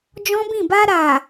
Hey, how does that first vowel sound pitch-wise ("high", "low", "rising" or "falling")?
high